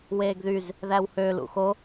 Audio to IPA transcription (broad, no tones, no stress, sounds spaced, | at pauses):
w eː ɡ ð y z | ð æ w h ø l ṵ x o